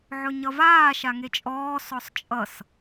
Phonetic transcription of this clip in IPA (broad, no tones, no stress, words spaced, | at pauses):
ʕɵɲʌvaː ʃaŋet͡ʃʼɔː sɔsˤt͡ʃʼʌs